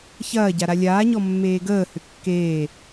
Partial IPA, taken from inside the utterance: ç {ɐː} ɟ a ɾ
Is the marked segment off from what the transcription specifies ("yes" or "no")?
no